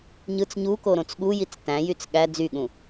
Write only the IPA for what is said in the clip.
ɲ ɯ t͡s ɲ u k o ɾ õ t͡s ɠ u j i t͡s t æ̃ j y t͡s ɠ æ d͡z y ɠ ũ

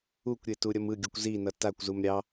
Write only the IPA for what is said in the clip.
u kʷ ɾʲ e t u ɾʲ ʌ m ɯ ɡʲ u kʷ z i n ʌ t a kʷ z u m ɾʲ ɑ

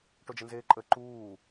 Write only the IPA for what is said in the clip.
ʈ o d͡ʒ ə n z eː ǃʼ ə ǃ uː

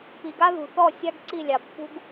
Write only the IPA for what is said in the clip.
p i˨ ɡ a˦ ð ṳ˨ θ ɔ˦˨ sʲ a˦ ɡ ǀ i˦˨ lʲ ɑ˨ pː ṳ˦ ɡ

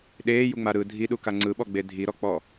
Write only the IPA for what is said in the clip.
ɗ eː j u ŋ͡m a ɾ ɯ dʱ i ɗ u k a ŋ͡ǀ ɯ ɓ ɔ ɡ͡b e dʱ i ɾ ɔ k͡p ɔ

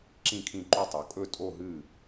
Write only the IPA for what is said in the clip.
ǁ ĩ˥˧ kʰ ĩ˥˧ ǃ u˥˧ tˤ o˨˦ kʼ ɵ˥˧ tʼ o˥˧ ɦ ɨ˥˧

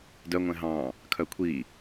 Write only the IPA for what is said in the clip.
d œ ŋʷ ɛ̃ ɦ ɑ̃ː | kʰ œ kʷʰ iː

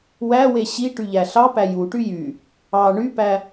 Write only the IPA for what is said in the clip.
w æ w e ɕ i ʈ y ʎ æ ɬ ɑ p æ j u ʈ y j y | ɑ ɳ y p æ

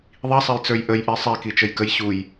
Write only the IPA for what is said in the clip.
ðˤ i sˤ ɛ j t͡s ə˞ j ʔ ə j ʔ i sˤ i k i t͡ʃ ə j k ə j ɕ u j

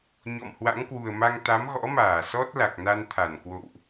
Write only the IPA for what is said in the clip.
ɲ ɔ̰˧˨ m h w a̰˧˥ ŋ k w u˨˩ ə̯ m a˧ ŋ t̪ a˨˦ m ɣ ɔ̰˧˥ m aː˧˩ s ɔ˦˥ t̚ l a˨˩ k̚ n a˧ n t̪ʰ a˧˩ n k w o̰˧˨ w ʔ

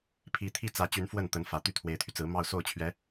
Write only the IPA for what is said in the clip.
pʰ i˧˥ t̪ʰ i˥˩ t͡s ä˧˥ t͡ɕ y˧˥ n f w ə˥˩ n t̪ ə˧˥ n f ä˨˩ t̪ y˥˩ t̪ʰ w e˧˥ ɪ̯ t̪ʰ y˧ t͡s ɹ̩˧˥ m ɑ˥˧ ʊ̯ s o˥˩ ʊ̯ t͡ɕʰ ɥ ɛ˧˥

